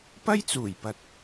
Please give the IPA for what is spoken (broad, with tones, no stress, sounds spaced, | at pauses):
p ɐ˥ j t͡s uː˨˩ j p ɐ˨ t̚